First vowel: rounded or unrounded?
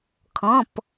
rounded